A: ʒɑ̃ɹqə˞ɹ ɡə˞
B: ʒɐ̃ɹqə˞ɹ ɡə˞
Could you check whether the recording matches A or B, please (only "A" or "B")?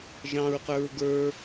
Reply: A